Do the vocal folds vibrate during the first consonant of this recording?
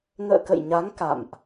yes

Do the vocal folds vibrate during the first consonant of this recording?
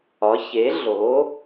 no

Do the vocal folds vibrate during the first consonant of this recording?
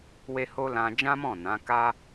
yes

